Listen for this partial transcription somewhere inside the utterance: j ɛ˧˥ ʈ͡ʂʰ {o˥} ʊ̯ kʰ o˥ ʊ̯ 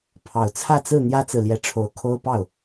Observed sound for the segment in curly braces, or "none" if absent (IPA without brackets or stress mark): o˧˥